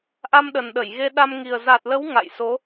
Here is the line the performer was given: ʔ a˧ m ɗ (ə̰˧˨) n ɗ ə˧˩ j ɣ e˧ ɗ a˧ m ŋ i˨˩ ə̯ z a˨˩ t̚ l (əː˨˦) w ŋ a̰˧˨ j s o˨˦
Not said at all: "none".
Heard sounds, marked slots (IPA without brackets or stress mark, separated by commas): ə˨˩, ə˨˦